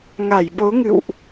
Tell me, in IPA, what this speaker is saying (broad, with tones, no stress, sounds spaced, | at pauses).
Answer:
ŋ a˧˩ j ɓ o˨˦ ŋ ɨ̰˧˨ w ʔ